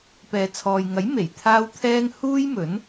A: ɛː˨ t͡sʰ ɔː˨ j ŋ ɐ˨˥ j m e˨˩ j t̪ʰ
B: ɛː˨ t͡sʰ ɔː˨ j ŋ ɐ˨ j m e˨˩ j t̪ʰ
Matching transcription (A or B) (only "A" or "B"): A